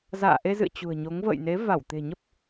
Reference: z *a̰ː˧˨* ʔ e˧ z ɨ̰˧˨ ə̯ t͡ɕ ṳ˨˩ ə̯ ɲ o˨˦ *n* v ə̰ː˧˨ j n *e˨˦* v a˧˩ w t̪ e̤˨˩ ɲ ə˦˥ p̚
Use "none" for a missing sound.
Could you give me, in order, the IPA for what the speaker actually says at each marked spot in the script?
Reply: a̰ː˧˨, ŋ, e˨˦

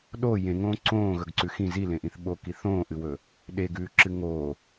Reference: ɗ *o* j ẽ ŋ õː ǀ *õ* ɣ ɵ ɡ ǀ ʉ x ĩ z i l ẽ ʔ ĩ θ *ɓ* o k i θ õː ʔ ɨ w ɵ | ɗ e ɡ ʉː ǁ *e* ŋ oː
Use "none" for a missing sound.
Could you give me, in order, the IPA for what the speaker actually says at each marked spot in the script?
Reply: o, õː, ɓ, ɨ

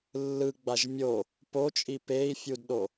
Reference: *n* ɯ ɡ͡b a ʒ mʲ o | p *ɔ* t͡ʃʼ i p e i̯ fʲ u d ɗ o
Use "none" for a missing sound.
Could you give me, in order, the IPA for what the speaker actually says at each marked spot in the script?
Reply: lː, o

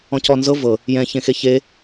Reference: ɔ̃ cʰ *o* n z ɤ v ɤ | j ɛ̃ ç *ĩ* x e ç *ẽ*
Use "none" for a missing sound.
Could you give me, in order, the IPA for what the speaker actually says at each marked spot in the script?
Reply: ɔ, ẽ, e

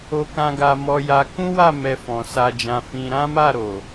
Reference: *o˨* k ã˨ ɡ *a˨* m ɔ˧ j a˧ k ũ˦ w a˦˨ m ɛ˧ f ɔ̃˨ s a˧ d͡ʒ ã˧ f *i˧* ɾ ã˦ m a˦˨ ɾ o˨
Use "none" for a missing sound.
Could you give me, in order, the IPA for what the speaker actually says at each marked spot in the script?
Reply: o˨, a˨, ĩ˧

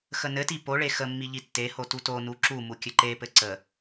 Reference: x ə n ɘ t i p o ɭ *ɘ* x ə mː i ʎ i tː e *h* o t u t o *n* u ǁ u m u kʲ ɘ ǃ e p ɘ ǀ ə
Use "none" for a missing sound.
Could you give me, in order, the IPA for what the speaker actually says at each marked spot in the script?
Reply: e, h, n

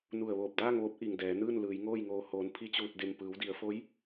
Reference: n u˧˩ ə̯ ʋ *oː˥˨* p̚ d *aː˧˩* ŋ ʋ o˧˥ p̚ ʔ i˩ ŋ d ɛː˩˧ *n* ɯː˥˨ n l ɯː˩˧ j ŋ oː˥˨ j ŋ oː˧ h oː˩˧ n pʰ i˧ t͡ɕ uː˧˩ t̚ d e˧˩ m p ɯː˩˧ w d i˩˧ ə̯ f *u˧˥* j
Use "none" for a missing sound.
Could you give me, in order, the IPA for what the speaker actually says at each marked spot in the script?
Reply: oː˧˩, aː˥˨, n, o˧˥

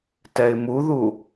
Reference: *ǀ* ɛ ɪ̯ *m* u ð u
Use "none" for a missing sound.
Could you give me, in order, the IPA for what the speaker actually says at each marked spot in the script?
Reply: t, m

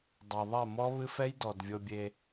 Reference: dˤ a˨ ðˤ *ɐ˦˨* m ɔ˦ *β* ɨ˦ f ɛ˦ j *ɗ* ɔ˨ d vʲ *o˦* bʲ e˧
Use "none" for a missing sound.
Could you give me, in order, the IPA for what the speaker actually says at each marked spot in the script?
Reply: ɐ˦˨, β, d, o˧

